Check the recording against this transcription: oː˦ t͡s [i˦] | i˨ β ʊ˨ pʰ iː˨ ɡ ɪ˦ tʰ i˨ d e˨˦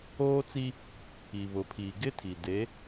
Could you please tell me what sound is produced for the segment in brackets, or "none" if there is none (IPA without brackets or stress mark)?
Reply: i˦